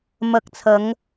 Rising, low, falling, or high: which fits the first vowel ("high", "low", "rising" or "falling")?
low